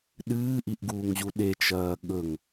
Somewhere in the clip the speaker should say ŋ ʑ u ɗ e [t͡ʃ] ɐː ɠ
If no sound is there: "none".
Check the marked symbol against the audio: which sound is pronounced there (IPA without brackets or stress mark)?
t͡ʃ